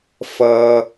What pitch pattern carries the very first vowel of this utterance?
low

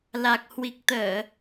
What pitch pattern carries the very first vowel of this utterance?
low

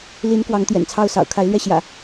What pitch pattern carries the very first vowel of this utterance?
rising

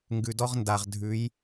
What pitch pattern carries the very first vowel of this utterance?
low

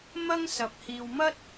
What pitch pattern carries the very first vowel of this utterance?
high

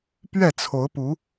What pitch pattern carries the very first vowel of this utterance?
falling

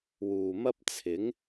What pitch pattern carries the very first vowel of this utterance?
low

